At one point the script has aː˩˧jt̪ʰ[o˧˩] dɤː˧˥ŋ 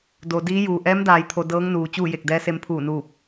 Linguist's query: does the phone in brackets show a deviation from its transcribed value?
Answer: yes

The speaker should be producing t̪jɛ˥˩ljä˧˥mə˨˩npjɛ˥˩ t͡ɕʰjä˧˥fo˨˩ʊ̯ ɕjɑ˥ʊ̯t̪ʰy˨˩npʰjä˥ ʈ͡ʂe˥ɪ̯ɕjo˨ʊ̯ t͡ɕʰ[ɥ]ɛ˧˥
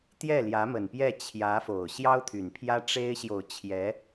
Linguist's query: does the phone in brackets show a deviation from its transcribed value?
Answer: yes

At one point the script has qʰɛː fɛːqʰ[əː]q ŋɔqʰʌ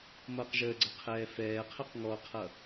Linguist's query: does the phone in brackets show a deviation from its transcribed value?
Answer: yes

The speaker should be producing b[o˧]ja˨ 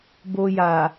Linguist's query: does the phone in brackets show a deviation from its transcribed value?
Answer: no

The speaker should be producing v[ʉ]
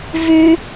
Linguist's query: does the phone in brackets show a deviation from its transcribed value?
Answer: no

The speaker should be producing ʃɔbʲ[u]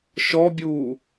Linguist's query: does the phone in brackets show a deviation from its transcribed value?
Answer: yes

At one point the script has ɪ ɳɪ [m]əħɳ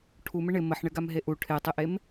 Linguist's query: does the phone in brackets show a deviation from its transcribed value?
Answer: no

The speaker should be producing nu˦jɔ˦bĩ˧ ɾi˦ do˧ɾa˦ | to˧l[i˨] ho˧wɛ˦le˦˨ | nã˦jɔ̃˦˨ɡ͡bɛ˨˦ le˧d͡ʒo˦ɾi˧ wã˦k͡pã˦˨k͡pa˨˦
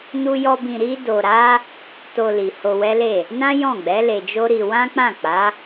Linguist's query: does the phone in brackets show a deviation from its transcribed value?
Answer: no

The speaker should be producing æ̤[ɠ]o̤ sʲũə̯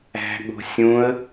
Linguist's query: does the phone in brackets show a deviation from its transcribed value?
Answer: no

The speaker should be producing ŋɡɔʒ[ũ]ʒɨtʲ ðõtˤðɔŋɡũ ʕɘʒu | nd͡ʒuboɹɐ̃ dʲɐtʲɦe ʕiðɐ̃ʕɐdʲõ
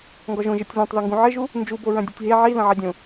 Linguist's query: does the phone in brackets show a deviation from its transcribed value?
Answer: yes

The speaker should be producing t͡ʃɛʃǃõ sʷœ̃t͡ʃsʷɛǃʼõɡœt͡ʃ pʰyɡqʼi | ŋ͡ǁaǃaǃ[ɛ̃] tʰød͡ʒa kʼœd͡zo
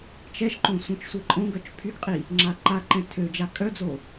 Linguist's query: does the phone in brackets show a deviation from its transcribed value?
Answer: no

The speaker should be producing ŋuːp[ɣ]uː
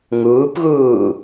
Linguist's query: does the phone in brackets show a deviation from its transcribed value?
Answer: no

